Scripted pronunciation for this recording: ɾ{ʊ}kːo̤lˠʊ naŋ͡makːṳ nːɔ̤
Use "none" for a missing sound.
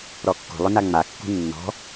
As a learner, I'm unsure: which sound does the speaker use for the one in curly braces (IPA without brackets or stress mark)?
ɔ